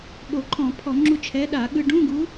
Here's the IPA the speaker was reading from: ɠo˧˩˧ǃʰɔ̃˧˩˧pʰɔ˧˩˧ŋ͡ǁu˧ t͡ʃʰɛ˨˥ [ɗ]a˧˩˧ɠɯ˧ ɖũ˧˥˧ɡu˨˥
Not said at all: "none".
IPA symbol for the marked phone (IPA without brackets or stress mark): ɗ